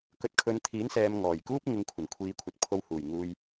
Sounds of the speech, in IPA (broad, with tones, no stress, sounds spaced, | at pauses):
k ɵ˨˥ t̚ kʰ ɵ˨˧ n t̪ʰ iː˨˥ n s ɛː˨ m ŋ ɔː˨˩ j k uː˥ p̚ ŋ ɪ˨˧ ŋ kʷʰ ɐ˨˩ n kʷʰ iː˨˧ kʷʰ ɐ˨˥ t̚ pʰ o˧ w h uː˨˩ j ŋ uː˨ j